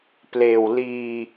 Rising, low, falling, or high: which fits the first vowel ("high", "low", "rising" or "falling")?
low